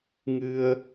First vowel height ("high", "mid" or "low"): high